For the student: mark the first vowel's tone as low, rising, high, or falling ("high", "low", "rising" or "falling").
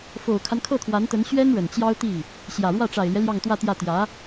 low